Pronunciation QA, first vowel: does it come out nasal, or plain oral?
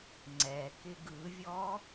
oral